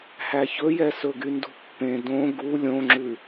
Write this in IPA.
h æ ç ɵ j ɛ s ɵ ɡ y n d ṳ pː ẽ d õ ɡ u lʲ õ ŋ͡ǁ ʉ

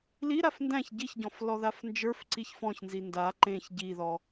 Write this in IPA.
l i ɾ a f n d æ̃ ç ɟ i ç ɟ ɔ̃ f l ɔ ð a f n d͡ʒ ə˞ f ǀ i ç f ɔ̃ ç n z i n d a ǃ ẽ ç ɟ i ð ɔ

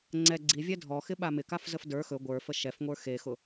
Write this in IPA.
ŋ͡ǀ ɛ ɡ͡ǀ i vʲ ɛ dʱ ɔ x ɪ ɓ a m ɪ k a f z ə f d ə˞ x ɵ ɡʷ ə˞ f ə ʃ ɛ f ŋʷ ə˞ x e x ʊ

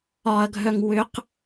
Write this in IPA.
ɒ ɐ̯ ɡʱ œ ŋ w ʏ q

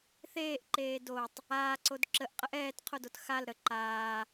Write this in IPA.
θ eː ʔ ǃ eː d o tˤ | aː ǀ o d ǁ ə ʔ qʼ ə ʔ ɛː t qʰ o d o t x a l ɾ ə ǃ aː

